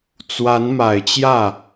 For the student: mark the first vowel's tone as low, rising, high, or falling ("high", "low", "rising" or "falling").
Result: rising